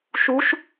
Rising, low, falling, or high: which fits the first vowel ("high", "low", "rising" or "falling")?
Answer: rising